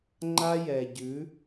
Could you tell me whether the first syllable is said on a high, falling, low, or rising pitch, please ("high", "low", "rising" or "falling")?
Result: high